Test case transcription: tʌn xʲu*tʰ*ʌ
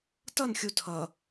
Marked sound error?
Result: no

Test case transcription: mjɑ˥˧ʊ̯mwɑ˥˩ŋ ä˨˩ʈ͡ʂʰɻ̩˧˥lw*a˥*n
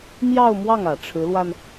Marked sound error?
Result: yes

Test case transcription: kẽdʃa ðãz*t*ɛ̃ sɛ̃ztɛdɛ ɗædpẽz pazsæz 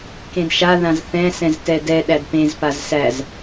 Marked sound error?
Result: yes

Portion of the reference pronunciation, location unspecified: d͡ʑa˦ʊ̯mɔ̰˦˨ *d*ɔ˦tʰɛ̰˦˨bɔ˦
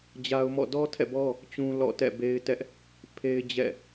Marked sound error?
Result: no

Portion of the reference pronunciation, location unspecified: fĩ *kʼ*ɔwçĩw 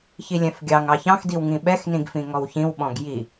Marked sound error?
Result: yes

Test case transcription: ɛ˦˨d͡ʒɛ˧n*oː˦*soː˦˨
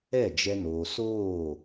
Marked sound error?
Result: yes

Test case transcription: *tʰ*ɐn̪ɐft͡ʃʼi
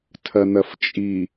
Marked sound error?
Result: no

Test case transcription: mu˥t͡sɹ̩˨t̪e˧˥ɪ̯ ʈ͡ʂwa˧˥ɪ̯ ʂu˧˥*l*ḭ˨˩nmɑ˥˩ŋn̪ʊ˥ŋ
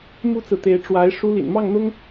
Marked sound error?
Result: no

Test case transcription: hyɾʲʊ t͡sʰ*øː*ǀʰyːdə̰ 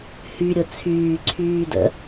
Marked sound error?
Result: yes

